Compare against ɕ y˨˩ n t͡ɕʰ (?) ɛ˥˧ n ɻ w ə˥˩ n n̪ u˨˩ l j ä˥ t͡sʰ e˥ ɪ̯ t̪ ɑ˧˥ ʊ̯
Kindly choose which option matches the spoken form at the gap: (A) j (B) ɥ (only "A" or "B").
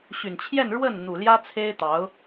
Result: A